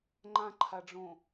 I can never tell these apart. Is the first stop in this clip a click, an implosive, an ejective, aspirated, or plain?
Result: click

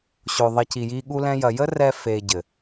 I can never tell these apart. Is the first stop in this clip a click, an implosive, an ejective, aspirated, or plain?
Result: plain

